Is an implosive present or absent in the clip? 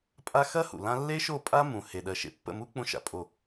present